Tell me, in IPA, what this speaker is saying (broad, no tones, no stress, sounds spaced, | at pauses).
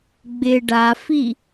ɡ͡b ɪ ɖ a f i